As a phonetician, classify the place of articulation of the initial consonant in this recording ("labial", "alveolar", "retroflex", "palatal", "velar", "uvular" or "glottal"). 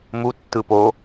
labial